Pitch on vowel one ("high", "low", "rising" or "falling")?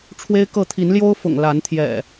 high